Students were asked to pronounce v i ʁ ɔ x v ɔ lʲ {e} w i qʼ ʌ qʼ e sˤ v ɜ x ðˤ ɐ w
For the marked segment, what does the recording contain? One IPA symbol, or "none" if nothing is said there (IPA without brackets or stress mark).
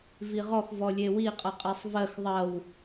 e